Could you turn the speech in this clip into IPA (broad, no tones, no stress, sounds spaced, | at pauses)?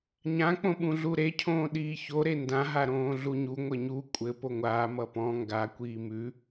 ɲ ã k͡p õ ɓ ũ ɮ u ɾ e cʰ õː ɗ iː ç o ɾ e n d ã ɦ a ɾ õː ɮ u ɲ u ŋʷ ɘ ɲ u kʷʼ ɘ p o ŋʷ aː m ʌ p ɔ̃ ŋ ɡ a kʷ iː m ʉ